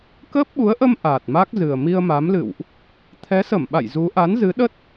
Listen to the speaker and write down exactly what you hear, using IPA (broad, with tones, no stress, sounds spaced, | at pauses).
k əː˦˥ p̚ ɓ u˨˦ ə̯ ʔ ə˧ m ʔ aː˨˩ t̚ m a˦˥ k̚ z ɨ˨˩ ə̯ m i˧ ə̯ m a˨˦ m l ɨ̰˧˨ w ʔ | t̪ʰ ɛ˨˦ s ə˧˩ m ɓ a̰˧˨ j z u˨˦ ʔ a˨˦ n z ɨ˨˦ ɗ ə˦˥ t̚